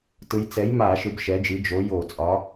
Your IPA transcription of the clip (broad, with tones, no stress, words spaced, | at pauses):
tɯ˨˥j t͡sɛ˨˥jma˧˩˧ ʃɯ˨˥bʃɛ˨˥d͡ʒi˨˥ d͡ʒo˨˥jo˧˩˧t͡sʼɒ˨˥